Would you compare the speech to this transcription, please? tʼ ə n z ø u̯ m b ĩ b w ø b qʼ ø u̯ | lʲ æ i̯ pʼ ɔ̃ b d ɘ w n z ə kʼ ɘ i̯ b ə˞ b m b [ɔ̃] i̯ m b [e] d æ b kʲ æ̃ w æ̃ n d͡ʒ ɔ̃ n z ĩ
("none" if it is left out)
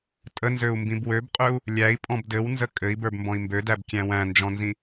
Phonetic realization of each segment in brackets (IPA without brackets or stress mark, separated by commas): ɔ̃, ø